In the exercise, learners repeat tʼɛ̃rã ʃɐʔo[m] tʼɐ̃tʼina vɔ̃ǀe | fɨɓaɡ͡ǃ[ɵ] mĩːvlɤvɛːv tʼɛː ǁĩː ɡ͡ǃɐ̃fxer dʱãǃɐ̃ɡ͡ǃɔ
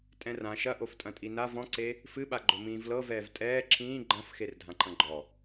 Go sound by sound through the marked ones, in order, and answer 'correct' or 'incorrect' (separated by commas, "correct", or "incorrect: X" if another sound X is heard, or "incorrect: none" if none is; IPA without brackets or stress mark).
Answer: incorrect: f, correct